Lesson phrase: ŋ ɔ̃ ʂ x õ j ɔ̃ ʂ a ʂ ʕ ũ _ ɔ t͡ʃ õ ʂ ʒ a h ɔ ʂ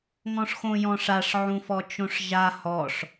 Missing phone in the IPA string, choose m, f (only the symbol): f